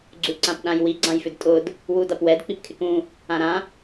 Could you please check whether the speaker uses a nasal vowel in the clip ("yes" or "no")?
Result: yes